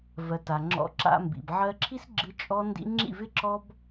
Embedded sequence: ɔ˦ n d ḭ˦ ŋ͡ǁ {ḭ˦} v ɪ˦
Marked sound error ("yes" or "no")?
yes